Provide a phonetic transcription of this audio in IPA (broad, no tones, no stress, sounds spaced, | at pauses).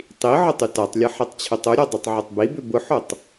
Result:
tˤ i ʕ ʊ tˤ y t a tˤ lʲ ɐ ħ e tˤ t͡ɕʰ ʏ tˤ ʊ ɾʲ ɔ dˤ o tˤ ʕ ʏ tˤ b i b ʏ b ʊ ħ o tˤ